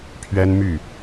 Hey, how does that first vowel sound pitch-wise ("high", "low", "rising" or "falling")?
high